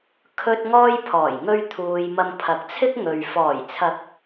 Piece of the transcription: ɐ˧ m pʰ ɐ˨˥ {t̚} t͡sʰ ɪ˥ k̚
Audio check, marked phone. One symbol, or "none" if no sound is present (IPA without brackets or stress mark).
k̚